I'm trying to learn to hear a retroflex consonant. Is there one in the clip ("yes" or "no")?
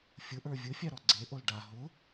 yes